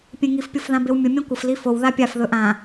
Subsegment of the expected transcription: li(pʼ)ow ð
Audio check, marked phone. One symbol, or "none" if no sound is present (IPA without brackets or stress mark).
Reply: f